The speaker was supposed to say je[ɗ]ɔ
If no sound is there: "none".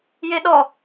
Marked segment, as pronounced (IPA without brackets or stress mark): ɗ